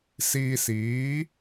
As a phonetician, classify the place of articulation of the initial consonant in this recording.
alveolar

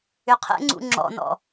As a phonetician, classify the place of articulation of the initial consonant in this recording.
uvular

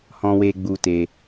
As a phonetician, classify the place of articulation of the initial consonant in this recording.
glottal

